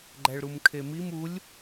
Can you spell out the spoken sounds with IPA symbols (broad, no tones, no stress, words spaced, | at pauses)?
ɡ͡ǃæɭɾumkʰemim ulʲ